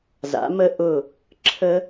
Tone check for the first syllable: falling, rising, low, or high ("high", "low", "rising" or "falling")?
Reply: rising